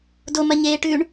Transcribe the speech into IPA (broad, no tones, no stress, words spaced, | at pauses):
domɐɲeːʈʉːɳ